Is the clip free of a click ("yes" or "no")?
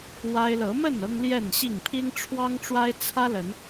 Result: yes